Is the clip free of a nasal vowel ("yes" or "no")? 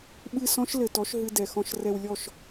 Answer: no